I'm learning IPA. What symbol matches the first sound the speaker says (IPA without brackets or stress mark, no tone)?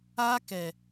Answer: aː